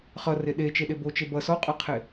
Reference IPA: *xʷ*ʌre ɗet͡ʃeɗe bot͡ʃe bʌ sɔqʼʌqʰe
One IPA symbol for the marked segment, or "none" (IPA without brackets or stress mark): χ